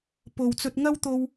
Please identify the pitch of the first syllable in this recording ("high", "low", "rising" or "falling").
low